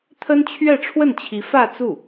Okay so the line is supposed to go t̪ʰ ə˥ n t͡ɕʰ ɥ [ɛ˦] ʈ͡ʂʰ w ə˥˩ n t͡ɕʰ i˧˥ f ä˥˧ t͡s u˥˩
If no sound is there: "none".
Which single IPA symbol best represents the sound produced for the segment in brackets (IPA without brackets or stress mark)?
ɛ˥˧